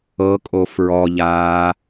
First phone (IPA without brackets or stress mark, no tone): ɤ